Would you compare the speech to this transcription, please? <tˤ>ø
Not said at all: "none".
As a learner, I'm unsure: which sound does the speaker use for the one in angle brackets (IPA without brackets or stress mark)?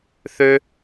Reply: θ